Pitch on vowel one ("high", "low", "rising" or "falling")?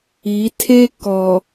rising